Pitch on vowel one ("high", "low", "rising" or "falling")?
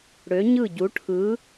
rising